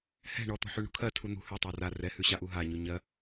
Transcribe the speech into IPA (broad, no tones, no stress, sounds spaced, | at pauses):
h ɛ̤ ɳ ɔ t̪ ɔ̤ ħ ʉ ɳ ṳ kʰ ɜ tʰ u n̪ ṳ h ʉ tˤ a r a r ɛ h ʉ ɕ a ʔ u ɦ a ɲ ʉ ɲ ɜ